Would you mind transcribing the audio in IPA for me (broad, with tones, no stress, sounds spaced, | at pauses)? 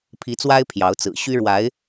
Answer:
pʰ i˧˥ t͡s w a˥ ɪ̯ pʰ j ɑ˧˥ ʊ̯ t͡s ɹ̩˨˩ ɕ y˥ ɻ w a˧˥ ɪ̯